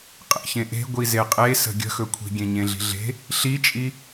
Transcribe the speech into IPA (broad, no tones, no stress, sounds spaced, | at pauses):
qʼ ḛ ç ẽ ʔ e̤ ɡʷ i z e qʼ e s ə̤ ɡʲ ə̤ x ɵ kʷʰ i̤ ɡʲ ẽ ɲ ẽ ɮ i̤ ɮ e̤ | ɬ i t͡ʃʼ i